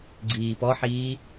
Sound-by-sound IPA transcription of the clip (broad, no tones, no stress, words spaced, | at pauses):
ɡ͡ǀiːpɔħiː